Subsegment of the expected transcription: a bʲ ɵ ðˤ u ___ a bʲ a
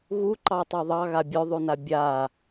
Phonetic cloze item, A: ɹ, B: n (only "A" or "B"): B